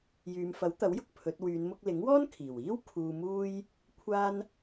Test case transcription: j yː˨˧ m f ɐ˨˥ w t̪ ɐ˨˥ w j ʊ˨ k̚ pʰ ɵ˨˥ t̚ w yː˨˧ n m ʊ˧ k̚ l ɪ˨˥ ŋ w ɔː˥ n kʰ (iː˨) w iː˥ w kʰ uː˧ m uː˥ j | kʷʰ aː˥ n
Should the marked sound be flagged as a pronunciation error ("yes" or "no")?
yes